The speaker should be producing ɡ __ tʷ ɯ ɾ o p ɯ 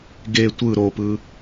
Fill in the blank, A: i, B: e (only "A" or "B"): B